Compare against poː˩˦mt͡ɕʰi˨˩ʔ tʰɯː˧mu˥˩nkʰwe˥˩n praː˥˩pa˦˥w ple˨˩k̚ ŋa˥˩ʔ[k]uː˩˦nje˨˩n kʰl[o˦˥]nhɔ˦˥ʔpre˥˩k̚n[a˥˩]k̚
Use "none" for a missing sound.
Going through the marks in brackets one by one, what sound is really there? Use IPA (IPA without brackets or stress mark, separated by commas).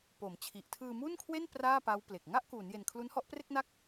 k, u˦˥, a˥˩